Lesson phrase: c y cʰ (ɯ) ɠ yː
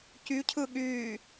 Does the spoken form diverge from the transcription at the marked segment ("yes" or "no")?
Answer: no